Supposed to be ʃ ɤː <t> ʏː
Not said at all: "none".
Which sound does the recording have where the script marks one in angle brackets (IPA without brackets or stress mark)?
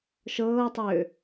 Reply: tˤ